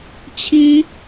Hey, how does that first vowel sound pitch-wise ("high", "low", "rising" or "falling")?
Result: high